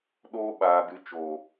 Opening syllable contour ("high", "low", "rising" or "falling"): high